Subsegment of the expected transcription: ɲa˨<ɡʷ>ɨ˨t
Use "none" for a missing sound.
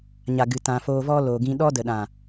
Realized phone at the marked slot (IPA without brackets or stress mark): ɡ